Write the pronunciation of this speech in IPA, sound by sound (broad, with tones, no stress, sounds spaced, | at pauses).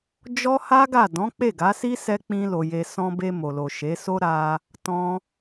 d͡ʒ ɔ˦ h a˦ ɡ a˦˨ d ɔ̃˨˦ k͡p e˦˨ ɡ a˨˦ s i˦ s ɛ˦ k͡p ĩ˦ l o˧ j e˧ s ɔ̃˧ b e˧ m o˨ l o˨ ʃ e˨˦ s o˦ ɾ a˧ | t ɔ̃˦